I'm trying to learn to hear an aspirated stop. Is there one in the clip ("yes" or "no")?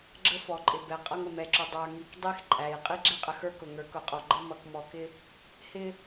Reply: no